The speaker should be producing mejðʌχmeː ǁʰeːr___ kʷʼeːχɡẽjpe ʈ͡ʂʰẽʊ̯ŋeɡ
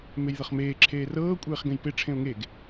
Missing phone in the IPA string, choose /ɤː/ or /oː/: ɤː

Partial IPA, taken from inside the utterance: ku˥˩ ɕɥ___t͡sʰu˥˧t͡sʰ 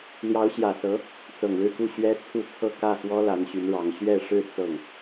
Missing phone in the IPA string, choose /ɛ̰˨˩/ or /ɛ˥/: ɛ˥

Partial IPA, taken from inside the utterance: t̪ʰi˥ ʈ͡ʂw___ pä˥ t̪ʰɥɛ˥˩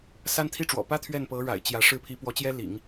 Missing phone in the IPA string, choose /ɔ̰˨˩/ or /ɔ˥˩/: ɔ̰˨˩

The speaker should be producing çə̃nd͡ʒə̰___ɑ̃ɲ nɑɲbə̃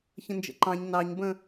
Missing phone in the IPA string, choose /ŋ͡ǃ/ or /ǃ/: ǃ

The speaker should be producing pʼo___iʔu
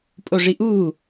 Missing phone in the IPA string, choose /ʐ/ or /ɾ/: ʐ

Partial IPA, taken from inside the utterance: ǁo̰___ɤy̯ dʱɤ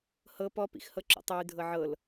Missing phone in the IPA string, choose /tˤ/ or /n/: tˤ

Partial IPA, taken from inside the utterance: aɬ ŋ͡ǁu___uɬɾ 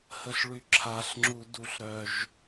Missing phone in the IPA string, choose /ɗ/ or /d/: d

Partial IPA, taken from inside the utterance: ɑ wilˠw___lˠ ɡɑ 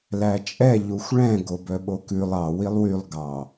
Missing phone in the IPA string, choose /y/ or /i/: y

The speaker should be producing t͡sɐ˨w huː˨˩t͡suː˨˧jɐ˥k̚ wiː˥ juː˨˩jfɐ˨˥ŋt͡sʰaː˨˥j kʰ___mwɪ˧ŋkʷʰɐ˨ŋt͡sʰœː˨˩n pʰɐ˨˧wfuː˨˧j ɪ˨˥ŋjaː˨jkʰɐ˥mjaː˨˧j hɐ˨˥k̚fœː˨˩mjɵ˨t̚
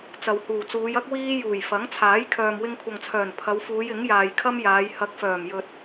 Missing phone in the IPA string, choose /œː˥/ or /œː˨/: œː˨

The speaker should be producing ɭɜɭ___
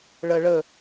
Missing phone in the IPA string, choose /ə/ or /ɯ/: ə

